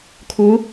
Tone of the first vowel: rising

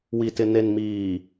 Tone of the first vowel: low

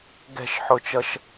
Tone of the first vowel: falling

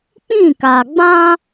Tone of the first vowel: falling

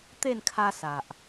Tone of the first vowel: falling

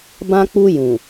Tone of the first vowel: high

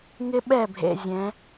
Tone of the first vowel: high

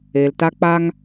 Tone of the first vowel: low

